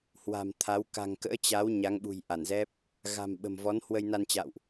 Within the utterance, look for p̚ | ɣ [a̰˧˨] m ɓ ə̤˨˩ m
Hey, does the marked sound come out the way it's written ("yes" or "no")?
no